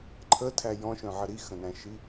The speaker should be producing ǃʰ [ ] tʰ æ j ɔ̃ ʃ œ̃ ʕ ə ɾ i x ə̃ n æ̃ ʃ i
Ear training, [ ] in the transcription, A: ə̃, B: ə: B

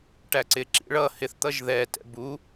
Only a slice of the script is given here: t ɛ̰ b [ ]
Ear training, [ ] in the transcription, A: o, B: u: B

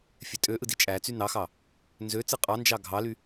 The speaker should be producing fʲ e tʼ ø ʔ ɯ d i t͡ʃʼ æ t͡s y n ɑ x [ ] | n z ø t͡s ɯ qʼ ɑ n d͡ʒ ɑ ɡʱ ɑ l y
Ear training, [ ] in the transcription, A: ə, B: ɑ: B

